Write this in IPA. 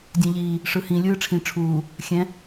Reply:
dʲɛ̃ʎiː | ʂɯhĩ lʲɯːʈ͡ʂʰĩ ʈ͡ʂʰuː | xʲɛ̃

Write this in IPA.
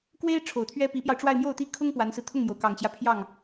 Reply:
kwe˥ɪ̯ ʈ͡ʂʰo˨˩ʊ̯t̪ʰɥɛ˥ pi˧˥pjɑ˧ʊ̯ʈ͡ʂwa˥˧ɪ̯ mjo˥˩ʊ̯t̪i˥ kʰʊ˥ŋ pwa˧˥nsɹ̩˧ t̪ʰʊ˥˩ŋmjo˩ʊ̯kɑ˨˩ŋt͡ɕjä˦ pʰjɑ˥˩ŋ

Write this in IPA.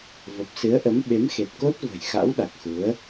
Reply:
və˨˩p̚sɨ˨˦ə̯ʔə˨˦m ɓe˨˦mxe˨˩t̚ko˦˥t̚ və̤˨˩jxa̰˧˥wɗa˨˩k̚xu˨˦ə̯

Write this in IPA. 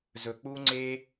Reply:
zɵ˨k͡pu˦ŋ͡ǀe˦

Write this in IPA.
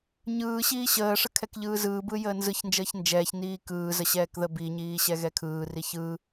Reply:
ɲɯː ɕiːɕəːʂə kʰɛkʎɯːzɯːbɯ jəːnzɯçnd͡ʒəːç nd͡ʒɛːç niːkɯːzə ɕɛːkðəbiɲiː ɕɛɣɛkʰɯːri çɯ

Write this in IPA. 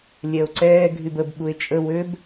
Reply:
lʲɛo̯ǀɛː ɡʱybəb ɓue̯t͡ʃʼə wøb

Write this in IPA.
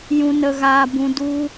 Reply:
jũ˧nə˧ɣaː˧bũ˧ du˧

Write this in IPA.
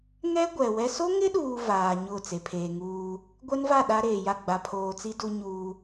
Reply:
ŋɛ˦ ɡʷɛ˨wɛ˦ so˦ŋɪ˦ɗuː˨ vaː˨ ɲʊ˦˨t͡se˨pʰeː˨ŋuː˦ | ɡʷɛ˦nva˦˨ ɗa˦ɾeː˨ja˦˨ ɡ͡ba˨pʰoː˨t͡si˦ du˦ɲuː˦

